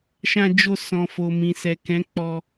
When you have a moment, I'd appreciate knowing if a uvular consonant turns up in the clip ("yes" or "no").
no